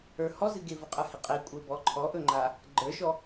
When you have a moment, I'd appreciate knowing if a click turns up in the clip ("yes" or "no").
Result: yes